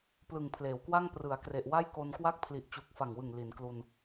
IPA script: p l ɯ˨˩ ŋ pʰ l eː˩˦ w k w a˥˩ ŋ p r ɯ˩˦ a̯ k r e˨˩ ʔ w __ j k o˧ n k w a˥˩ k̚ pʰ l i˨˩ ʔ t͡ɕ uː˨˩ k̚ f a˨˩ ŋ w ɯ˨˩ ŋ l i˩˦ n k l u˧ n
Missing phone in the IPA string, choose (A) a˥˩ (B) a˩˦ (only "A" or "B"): A